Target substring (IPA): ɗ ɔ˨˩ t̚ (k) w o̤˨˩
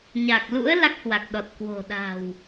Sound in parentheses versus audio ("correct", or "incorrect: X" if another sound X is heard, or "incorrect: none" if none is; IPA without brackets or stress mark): correct